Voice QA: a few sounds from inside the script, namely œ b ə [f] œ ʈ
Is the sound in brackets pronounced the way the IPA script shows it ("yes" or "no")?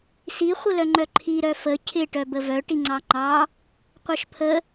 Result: no